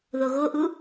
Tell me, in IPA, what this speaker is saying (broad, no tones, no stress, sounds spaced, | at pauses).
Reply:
ð o ɣ o ʔ u